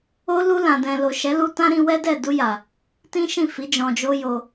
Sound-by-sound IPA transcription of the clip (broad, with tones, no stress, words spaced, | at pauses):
o˦ lu˧lã˨dɛ̃˨ lo˨ʃɛ˨˦lu˧ tã˦ɾĩ˧wɛ˦dɛ˦˨ du˧ja˨ | tĩ˦ʃĩ˦˨fi˨˦ d͡ʒɔ̃˧d͡ʒo˦jo˧